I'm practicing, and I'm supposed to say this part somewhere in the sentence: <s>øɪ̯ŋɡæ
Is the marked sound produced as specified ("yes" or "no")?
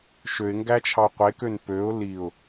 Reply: no